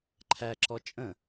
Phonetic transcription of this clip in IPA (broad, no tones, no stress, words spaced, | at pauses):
ǃʰæǁɔ t͡ʃʼə̃